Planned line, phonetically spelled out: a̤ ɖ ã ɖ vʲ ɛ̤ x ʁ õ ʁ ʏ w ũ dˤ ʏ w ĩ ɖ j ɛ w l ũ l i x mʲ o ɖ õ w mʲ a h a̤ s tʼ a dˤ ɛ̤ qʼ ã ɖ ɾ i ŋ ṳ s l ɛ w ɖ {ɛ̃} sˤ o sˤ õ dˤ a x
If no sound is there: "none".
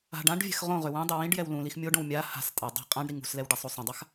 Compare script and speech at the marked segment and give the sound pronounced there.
ɛ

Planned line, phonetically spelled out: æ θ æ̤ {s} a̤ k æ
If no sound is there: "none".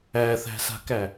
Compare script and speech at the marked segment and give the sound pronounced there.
s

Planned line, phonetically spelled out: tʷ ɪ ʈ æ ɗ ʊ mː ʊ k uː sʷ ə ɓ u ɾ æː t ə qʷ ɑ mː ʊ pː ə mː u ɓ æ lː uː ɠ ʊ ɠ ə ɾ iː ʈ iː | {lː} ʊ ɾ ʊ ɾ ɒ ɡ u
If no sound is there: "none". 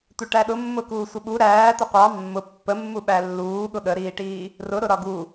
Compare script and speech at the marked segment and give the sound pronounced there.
r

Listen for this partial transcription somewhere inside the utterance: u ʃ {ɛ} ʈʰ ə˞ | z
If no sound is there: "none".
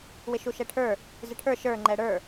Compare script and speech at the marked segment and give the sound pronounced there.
ɛ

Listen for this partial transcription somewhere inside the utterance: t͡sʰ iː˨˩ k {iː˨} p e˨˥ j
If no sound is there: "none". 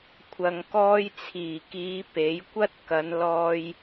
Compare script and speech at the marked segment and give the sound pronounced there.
iː˨˧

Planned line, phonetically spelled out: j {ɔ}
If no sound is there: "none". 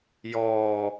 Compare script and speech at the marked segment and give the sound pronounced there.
ɔ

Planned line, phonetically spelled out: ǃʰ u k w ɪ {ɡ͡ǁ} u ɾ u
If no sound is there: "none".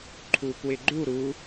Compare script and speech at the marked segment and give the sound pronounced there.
ɡ͡ǃ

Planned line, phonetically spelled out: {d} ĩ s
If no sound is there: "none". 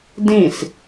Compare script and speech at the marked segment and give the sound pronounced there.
d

